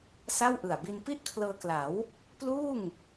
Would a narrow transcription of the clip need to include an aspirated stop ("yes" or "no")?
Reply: yes